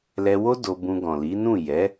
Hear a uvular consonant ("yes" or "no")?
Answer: no